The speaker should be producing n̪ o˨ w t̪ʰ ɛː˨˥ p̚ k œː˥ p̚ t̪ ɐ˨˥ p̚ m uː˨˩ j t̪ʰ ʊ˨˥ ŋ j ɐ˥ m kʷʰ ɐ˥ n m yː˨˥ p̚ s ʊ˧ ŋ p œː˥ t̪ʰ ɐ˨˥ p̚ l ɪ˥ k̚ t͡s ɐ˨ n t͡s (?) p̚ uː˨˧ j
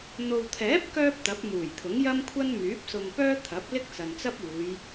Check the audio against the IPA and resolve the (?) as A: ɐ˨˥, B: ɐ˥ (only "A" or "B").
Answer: B